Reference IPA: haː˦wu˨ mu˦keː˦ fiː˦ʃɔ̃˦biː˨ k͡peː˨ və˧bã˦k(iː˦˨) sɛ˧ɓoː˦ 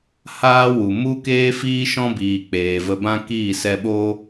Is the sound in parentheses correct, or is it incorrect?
correct